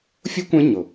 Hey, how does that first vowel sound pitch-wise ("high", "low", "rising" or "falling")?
high